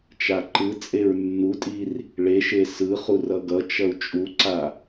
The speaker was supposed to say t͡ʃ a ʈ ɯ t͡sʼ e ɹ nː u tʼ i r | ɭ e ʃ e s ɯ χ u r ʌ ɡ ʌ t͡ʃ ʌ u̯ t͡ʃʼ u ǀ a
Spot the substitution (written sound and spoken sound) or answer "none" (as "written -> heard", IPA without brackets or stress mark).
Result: ʈ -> ǃ